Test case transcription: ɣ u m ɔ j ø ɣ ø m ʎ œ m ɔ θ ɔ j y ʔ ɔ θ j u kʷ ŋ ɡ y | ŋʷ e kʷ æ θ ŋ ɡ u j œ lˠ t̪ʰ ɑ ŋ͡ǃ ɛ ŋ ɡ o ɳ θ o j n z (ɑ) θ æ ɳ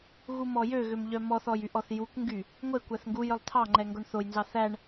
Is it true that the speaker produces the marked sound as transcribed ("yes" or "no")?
yes